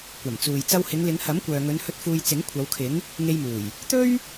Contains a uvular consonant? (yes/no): no